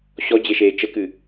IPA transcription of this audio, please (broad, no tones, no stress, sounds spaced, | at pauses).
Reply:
ɕ ɔ d͡ʑ e ʃ eː t͡ʃ ə k ɨ